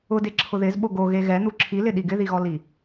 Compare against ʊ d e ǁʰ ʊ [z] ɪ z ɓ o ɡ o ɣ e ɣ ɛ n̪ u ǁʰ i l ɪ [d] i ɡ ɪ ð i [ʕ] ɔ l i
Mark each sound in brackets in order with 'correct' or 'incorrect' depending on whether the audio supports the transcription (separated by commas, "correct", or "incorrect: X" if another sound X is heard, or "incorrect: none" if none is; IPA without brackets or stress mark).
incorrect: ð, incorrect: ɗ, incorrect: ɣ